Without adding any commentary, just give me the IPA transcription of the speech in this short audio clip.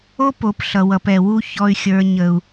o˦ p o˨˦ p ɬ ʌ˨ w ʌ˨ p ɛ˨ w u˦ ç ɔ˦ y̯ xʲ ə˞˦ ɲ ə˦ u̯

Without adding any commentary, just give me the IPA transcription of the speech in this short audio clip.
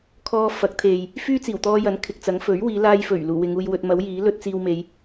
kʰ ɔː˧ f ɐ˨˥ k̚ t̪ʰ e˨ j | f yː˥ t͡s iː˨˩ w t̪ ɔː˧ j ɐ˨˥ n kʰ ɪ˨ k̚ t͡s ɐ˨˥ ŋ f ɵ˨˥ ɥ w iː˨˧ l aː˧ j f ɵ˨˩ ɥ l uː˨˩ w ɪ˨˧ ŋ uː˧ j w ɵ˧ t̚ m ɐ˨˥ w j iː˨˥ l ɵ˥ t̚ t͡s iː˧ w m e˨˧ j

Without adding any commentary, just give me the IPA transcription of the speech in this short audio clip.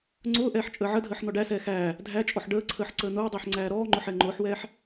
ŋ͡ǀ ʊː ʔ ɛː ħ t͡ʃʼ əː ʕ ə dʱ əː ħ n̪ ɔ ɖ æ s ɛː x æː | dʱ æ t͡ʃʼ ɔ ħ ɖ əː ǀʰ əː ħ ǀ əː n̪ ʊː dˤ ʊː ħ ŋ͡ǀ æː ɾ ɔː ŋ͡ǃ ʊ ħ ɛ ŋ͡ǃ ʊː ħ w ɛː ħ

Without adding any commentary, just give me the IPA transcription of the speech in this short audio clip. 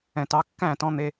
ɛ̃˨ t ɑ˧ kː æ̃˦˨ t ɔ̃˧ n̪ e˧

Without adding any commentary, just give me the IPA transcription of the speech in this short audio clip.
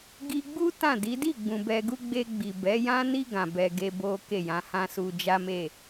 ɡ i˧ ɡ͡b u˦ t ã˦˨ d i˨˦ d i˦˨ ɡ͡b ũ˨ b ɛ˧ ɡ u˦ ɡ͡b e˧ ɡ͡b i˨ b ɛ˨˦ j ã˦ n i˦ ɡ ã˧ b ɛ˧ ɡ e˦ b o˦ k e˦˨ j ã˨˦ h ã˦ s u˧ d͡ʒ a˦ m e˦˨

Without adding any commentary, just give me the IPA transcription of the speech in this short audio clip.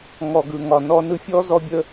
ŋ ɔ˨ ɡ ɯ˨ ŋ ɒ˨ n ɔ˧ n ɯ˧ fʲ ɔ˦ z ɔ˧ bʲ ə˧

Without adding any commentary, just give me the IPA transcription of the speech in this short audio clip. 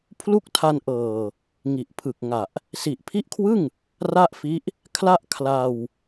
pʰ l u˥˩ k̚ tʰ a˧ n ʔ ɤː˨˩ | ŋ i˨˩ ʔ pʰ ɯ˨˩ k̚ ŋ a˨˩ ʔ | s i˨˩ ʔ pʰ i˦˥ ʔ kʰ w ɯ˥˩ ŋ | r a˥˩ ʔ f i˦˥ ʔ | kʰ l a˥˩ ʔ kʰ l a˧ w

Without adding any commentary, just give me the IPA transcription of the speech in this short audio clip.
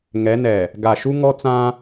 ŋ ɛ˨˦ n ɛ˨ | ɡ a˨ ʃ u˦ ŋ ɔ˦ t͡s ã˦

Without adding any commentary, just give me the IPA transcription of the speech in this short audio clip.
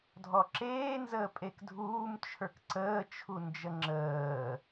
dʱ ɔ ǁ eː n z əː pʼ e k dʱ uː m t͡ʃʰ ə˞ k ǀ əː t͡ʃʰ u n d͡ʒ ə ŋ͡ǁ əː

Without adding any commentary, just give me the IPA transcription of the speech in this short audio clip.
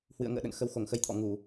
h w ɨ̰˧˨ ə̯ ŋ ə̰ː˧˨ ɗ ə̰˧˨ n x ə˨˦ w x o˧˩ ŋ x ə˧ j t̪ʰ ɔ̰˧˨ ŋ u˧˩˨

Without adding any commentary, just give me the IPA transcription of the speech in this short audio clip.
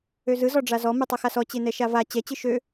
ø z ɯ z ɔ ɖ͡ʐ a z ɔ m ɯ tˤ ɯ x a s ɔ t͡ɕ e n ɛ ʃ a v a t͡ɕ ɛ t͡ɕ ɯ ʃ ø

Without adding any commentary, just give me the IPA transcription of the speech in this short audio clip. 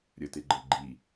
ɾʲ ə t e ɡ͡ǃ ɤ ɡ͡ǃ i

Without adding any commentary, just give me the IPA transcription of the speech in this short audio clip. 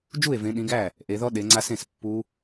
d͡ʒ u˥˩ e̯ v ẽ˨˦ ɗ ĩ˨˦ ɡ æ˥˩ | ʔ e˨˦ ð ɔ˦˥ ɗ e˨˦ ŋ͡ǀ a˦˥ s ẽ˥˩ s pː u˦˥

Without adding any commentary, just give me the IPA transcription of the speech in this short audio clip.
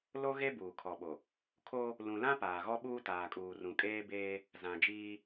l o˦ ɣ e˦ b uː˨ kʰ ɔ˨ ɓ o˨ | kʰ o˦ | l ũ˨ l ã˦ p aː˨ ɣ ɔ˦ ɓ uː˦ t aː˨ kʼ uː˨ r ũ˨ kʼ eː˦ b eː˦ | z ã˨ d͡ʒ iː˦

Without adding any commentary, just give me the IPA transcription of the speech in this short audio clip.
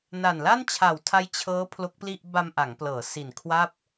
n a˨˩ n l a˥˩ n t͡ɕʰ a˨˩ w tʰ a˦˥ j t͡ɕʰ ɤː˦˥ pʰ l o˦˥ k̚ p l i˥˩ ʔ b a˧ m ʔ a˩˦ ŋ p l ɤː˩˦ s i˨˩ n kʰ w a˥˩ p̚

